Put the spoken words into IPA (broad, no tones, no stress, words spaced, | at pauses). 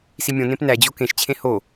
simʲõnẽp næ d͡ʑokẽʃt͡ɕʰẽ ho